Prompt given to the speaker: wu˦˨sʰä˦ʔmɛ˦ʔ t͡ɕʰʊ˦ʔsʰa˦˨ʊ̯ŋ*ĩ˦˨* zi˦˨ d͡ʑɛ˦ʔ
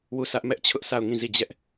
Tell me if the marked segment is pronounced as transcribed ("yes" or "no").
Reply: yes